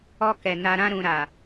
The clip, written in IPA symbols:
ɔ˧ k ɛ˨ n a˧ ɾ ã˦ ɾ ũ˧ ɾ a˨

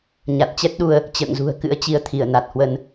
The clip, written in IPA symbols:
ɲ a˨˩ t̚ t͡ɕ ɛ˦˥ t̚ ɗ u˧ ə̯ | t͡ɕ ə̰ː˧˨ ŋ z ṳ˨˩ ə̯ k ɨ̰˧˥ ə̯ t͡ɕ i˧ ə̯ t̪ʰ i˧˩ ə̯ n a˨˩ t̚ h w ə˧ n

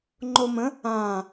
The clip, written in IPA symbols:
ŋ͡ǃ o m ə̃ | ã

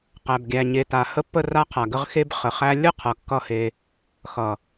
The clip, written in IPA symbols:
q æ˨ b ɡʲ æ˨ ɲ e˨ t a˨ h ə˦˨ pː ə˦˨ r a˧ qʰ a˨ ɡ ə˧ ʁ x e˧ b χ ə˨ χ æ˧ lʲ ə˦˨ qʰ ʌ˨ kː ʌ˦˨ h e˧ | x ʌ˨

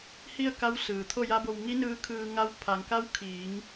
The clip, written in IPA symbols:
h i˥˨ ə̯ k a˧˥ w s ɯː˩ t̪ʰ o˥˨ j a˧˥ b o˧ w ŋ i˧˥ n ɯː˧ kʰ ɯː˧ ŋ a˧˥ w pʰ a˩˧ ŋ k a˧˥ w kʰ iː˩˧ ŋ

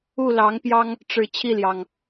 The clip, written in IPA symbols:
u˥˨ l ɑ˨˦ ŋ p j ɑ˦ ŋ | ʈ͡ʂ ɻ̩˨˦ t͡ɕʰ i˥˨ l j ɑ˨˩ ŋ

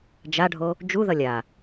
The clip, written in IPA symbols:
d͡ʒ a ɖʱ o | d͡ʒ u ð ʌ lʲ a

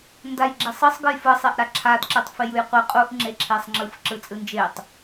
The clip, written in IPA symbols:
n d a j ɡ͡ǁ e sˤ ɯ sˤ ɡ ɯ j f ɯ sˤ e ʔ ɾ a ǁʰ a d ǁ ɯ tˤ f e j ɯ j qʷ ɯ qʼ u ʔ ŋ͡ǁ e ǁʰ e sˤ ŋ͡ǁ ɯ f ǁ ɯ t͡sʼ ɯ n d͡ʒ e tˤ

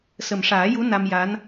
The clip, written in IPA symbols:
s ə˨˩ m ʂ aː˨˩˦ j u˧˥ n a˧ m j a˧˥ n

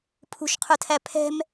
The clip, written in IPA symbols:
pʰ ṳ ʃ qʰ ʊ tʰ æ pʰ ɛ̤ m

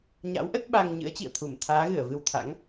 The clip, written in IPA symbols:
ɲ a̰˧˥ w ʔ ə˦˥ t̚ ɓ a˧ ŋ ɲ ɨ̰˧˥ ə̯ t͡ɕ ḭ˧˨ ə̯ t̪ʰ u˧˩ m t̪ʰ aː˨˦ ɣ ɨ˧˩ ə̯ v ɨ˧ w t̪ʰ a̰˧˥ ŋ

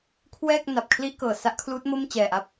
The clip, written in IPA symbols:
kʰ w ɛː˥˩ k̚ n a˨˩ p̚ kʰ l i˥˩ ʔ k ɤː˨˩ s a˦˥ ʔ kʰ l uː˦˥ t̚ m o˥˩ m t͡ɕ ɛː˨˩ ʔ a˦˥ p̚

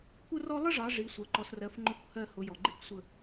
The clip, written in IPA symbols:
kʷ ə˥ r ɔ˥ lˠ ə˥ ʐ ɑ˨˦ ʐ i˨˦ sʷ ɜ˨ ǃ ɔ˨˦ s r ɜ˨˦ f ŋ͡ǃ ʊ˨˦ kʷ h ɜ˦˨ h ʊ˨˦ j ɔ˨ ɡ͡ǃ i˥ kʷ sʷ ə˦˨

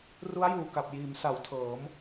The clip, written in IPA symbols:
r u˦˥ a̯ j uː˨˩ k a˨˩ p̚ j iː˩˦ m s a˩˦ w tʰ ɤː˩˦ m

